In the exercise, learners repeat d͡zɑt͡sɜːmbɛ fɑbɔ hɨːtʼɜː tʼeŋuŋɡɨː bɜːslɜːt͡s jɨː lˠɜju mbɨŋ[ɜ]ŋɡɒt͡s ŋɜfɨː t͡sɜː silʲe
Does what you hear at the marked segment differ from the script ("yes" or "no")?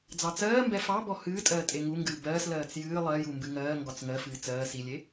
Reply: yes